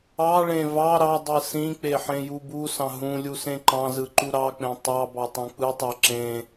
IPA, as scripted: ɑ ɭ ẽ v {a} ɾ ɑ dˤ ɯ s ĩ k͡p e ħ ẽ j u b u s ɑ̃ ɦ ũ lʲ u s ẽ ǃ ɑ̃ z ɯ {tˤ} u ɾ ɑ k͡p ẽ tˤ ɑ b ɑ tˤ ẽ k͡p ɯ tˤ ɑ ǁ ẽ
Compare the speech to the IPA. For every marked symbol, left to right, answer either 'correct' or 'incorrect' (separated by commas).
incorrect, incorrect